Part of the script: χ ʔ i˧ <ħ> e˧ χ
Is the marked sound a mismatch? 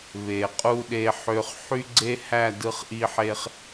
no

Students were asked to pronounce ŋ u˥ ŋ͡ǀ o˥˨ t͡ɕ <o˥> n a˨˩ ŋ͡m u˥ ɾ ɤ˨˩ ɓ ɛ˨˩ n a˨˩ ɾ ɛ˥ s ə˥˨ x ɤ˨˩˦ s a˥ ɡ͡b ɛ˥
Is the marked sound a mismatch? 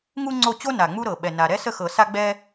no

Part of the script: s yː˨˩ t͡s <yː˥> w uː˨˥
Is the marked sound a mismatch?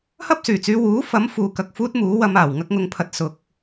yes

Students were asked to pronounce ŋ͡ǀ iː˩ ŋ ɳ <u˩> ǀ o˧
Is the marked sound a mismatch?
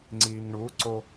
yes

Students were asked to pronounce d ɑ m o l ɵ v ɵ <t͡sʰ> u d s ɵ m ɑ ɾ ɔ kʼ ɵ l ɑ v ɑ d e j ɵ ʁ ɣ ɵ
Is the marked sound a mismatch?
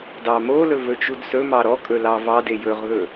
yes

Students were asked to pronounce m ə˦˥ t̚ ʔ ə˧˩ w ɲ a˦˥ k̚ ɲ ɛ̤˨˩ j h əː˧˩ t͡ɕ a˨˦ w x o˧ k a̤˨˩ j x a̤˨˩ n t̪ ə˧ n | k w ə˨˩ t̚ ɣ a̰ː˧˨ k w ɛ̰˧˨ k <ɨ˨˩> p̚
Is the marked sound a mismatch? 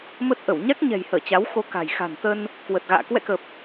yes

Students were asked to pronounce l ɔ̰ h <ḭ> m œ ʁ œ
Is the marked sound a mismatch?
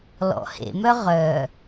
yes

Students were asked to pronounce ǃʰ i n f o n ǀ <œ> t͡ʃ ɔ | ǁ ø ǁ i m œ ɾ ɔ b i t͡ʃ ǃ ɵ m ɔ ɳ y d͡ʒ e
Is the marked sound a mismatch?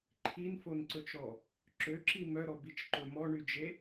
yes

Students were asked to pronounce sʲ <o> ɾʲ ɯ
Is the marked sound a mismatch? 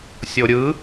no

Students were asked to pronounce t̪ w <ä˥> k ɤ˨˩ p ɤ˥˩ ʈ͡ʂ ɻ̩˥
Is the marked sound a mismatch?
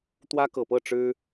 no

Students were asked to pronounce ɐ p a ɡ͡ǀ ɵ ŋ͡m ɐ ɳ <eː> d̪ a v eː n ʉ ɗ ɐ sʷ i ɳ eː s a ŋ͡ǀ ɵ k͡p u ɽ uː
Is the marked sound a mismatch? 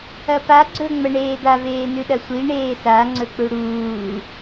no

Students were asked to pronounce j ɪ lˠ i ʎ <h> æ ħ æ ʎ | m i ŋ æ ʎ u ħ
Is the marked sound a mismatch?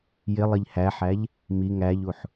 no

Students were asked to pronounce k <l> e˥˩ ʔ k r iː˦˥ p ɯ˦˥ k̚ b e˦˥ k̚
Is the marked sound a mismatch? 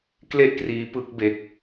no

